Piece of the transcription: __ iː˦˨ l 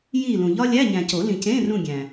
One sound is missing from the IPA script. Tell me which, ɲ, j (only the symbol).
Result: j